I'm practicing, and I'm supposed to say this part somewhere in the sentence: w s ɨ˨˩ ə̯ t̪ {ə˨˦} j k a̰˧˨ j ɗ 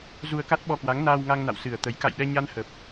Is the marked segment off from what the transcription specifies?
no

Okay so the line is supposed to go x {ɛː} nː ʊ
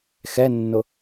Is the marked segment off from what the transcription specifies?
yes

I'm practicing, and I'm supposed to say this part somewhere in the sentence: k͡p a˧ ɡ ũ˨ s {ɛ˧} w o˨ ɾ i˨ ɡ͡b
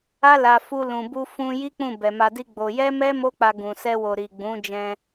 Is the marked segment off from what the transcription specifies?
no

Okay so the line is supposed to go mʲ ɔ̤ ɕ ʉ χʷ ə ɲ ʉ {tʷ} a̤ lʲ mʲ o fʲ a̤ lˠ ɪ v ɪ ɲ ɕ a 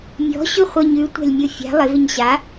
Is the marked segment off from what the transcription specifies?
no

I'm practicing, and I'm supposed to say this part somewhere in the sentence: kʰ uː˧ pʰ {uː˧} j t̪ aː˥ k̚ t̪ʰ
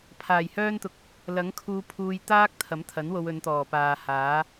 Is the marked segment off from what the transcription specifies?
no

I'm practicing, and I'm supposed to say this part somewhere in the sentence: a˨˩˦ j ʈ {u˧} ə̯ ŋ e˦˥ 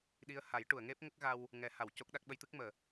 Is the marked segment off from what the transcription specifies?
yes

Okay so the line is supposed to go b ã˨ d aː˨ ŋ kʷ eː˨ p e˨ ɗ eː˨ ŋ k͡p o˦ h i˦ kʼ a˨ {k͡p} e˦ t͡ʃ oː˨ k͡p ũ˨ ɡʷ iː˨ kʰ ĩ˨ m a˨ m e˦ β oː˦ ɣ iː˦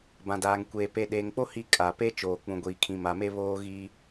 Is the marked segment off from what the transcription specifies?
yes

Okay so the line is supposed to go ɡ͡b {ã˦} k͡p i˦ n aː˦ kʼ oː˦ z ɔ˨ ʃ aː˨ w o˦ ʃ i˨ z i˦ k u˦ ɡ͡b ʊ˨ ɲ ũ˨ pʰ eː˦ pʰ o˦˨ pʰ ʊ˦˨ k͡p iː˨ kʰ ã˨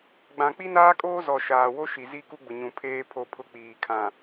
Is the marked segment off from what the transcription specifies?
yes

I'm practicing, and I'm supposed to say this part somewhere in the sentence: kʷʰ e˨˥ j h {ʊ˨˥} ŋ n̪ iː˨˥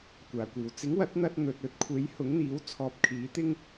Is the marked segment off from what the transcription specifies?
no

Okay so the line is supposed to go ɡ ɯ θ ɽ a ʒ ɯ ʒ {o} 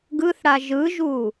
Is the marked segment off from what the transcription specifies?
yes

